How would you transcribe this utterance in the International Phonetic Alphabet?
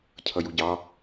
cʰʌjuɟɑ

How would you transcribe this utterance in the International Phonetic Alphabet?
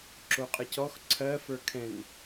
ǁoqʼəcɔx ǀʰɜ fə˞kʰɛ̃n

